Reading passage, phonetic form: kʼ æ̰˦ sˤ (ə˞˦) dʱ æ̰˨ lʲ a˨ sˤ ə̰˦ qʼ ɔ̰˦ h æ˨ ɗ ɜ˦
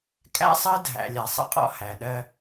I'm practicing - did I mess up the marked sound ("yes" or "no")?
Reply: yes